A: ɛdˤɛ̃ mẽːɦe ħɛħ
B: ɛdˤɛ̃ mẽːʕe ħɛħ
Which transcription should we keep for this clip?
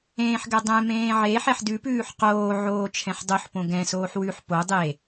B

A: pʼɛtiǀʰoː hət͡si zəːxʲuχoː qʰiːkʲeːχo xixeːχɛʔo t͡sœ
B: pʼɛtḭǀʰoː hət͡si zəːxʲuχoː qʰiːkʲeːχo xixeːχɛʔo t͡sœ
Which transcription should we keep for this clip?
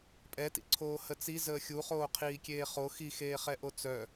B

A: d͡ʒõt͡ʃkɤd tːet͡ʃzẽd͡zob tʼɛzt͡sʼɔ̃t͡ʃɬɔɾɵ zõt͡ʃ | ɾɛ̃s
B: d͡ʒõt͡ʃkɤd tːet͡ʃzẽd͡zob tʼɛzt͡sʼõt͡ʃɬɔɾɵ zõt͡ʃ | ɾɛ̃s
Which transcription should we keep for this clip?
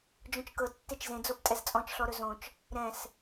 A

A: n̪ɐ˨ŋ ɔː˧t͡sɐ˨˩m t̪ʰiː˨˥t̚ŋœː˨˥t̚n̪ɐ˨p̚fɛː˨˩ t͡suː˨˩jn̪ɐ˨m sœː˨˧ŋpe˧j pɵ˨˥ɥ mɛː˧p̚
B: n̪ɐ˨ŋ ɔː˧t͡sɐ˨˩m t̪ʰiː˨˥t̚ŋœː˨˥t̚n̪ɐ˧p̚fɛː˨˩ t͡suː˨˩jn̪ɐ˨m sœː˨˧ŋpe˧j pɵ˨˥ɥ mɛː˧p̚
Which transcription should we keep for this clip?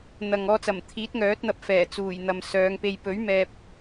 B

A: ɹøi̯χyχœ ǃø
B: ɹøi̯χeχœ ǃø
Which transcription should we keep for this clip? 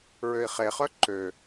B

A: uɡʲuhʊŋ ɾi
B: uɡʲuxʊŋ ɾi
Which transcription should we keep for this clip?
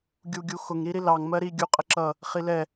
B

